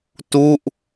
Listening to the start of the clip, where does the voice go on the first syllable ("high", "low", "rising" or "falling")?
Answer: falling